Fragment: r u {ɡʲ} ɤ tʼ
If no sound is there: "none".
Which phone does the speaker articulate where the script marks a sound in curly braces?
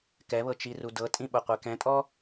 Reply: d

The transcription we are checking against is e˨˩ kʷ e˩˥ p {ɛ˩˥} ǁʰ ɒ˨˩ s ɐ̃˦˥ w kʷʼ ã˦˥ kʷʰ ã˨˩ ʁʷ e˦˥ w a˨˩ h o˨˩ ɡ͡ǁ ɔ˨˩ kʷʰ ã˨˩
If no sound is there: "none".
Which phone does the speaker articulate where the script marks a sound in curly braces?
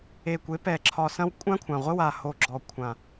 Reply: ɛ˨˩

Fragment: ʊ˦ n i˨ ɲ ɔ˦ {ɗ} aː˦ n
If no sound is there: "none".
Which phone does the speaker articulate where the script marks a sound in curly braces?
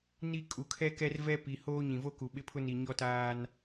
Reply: t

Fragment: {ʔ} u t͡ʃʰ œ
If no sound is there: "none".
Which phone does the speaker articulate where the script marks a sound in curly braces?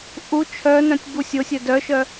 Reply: ʔ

